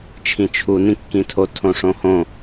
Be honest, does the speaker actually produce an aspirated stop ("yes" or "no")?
yes